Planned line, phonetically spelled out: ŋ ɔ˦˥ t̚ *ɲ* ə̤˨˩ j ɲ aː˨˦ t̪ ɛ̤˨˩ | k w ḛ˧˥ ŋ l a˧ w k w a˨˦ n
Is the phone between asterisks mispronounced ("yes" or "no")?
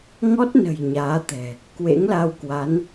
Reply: yes